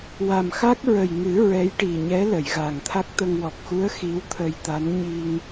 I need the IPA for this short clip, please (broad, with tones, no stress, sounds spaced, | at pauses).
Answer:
w a˨˩ m x a˦˥ k̚ ɹ ə˨˩ j ŋ ɨ˨˩˦ ɹ ɛ˧˥ j ʈ i˨˩ ɲ ɛ˧˥ l ə˨˩˨ j ɣ a˨˩ ŋ t̪ʰ a˦˥ k̚ t̪ ə˧ ŋ w ɔ˨˩ k̚ x u˧˥ ə̯ x i˧˥ w t̪ʰ ə˧ j t̪ a˧˥ n ɲ i˧ ŋ